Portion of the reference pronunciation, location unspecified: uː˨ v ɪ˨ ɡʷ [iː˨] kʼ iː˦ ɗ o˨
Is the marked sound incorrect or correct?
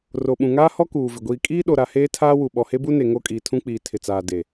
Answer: correct